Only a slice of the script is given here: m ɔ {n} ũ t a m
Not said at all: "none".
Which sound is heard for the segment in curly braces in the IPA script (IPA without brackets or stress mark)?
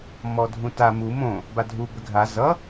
dʱ